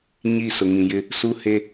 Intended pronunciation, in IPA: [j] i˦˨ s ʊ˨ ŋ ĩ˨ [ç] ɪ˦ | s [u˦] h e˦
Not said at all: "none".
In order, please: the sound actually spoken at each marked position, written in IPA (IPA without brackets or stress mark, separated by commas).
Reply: ɲ, j, u˦